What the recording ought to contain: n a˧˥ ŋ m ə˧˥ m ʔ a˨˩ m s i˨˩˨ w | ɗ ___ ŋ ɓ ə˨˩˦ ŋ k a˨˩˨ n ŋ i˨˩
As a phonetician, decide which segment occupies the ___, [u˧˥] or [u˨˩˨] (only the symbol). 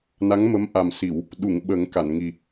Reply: u˨˩˨